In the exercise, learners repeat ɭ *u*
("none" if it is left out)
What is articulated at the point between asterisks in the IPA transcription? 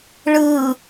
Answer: ɯ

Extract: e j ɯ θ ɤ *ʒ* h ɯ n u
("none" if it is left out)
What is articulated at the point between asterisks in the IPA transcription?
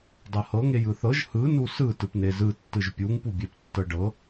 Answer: ʒ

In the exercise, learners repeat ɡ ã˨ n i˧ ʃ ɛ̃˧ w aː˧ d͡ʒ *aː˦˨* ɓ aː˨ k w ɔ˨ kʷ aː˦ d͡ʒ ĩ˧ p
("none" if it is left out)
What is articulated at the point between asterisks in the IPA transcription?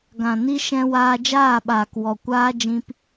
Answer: aː˦˨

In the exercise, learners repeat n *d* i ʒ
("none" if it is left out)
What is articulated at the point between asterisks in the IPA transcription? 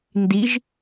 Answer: d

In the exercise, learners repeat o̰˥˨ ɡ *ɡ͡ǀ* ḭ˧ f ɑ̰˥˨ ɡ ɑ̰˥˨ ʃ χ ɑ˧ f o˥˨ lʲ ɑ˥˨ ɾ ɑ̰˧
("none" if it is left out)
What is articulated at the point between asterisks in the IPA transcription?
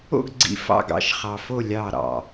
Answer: ɡ͡ǀ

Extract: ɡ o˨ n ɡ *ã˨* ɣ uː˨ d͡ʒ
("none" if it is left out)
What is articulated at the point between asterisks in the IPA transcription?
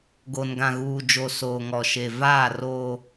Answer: ã˨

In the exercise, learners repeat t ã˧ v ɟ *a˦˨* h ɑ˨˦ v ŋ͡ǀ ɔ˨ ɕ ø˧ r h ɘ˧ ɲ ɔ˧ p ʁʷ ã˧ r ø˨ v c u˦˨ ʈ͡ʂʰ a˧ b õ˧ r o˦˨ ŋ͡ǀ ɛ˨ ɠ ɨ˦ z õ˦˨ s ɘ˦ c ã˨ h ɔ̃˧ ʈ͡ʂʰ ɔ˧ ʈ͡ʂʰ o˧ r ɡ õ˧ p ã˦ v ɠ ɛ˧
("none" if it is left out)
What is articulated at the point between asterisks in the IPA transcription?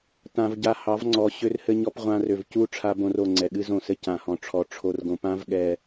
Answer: a˧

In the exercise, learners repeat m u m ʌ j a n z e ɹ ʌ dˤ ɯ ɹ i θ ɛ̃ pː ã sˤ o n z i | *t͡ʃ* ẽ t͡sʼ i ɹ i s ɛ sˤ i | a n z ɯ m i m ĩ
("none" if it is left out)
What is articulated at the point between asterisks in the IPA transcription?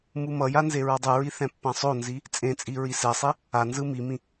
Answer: t͡sʼ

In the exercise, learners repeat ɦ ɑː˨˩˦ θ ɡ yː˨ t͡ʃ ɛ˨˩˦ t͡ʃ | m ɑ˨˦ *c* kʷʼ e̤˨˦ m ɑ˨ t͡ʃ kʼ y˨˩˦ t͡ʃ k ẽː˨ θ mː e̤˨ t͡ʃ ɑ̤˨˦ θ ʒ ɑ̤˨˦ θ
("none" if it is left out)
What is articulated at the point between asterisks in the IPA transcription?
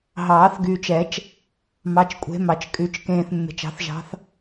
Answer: t͡ʃ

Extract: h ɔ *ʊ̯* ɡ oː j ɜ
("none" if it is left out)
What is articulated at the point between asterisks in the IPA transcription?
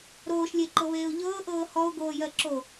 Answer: ʊ̯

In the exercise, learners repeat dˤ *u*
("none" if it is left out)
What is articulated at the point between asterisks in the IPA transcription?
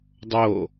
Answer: o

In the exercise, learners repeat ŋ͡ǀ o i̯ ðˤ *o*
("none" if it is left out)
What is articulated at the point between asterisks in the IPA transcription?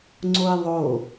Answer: o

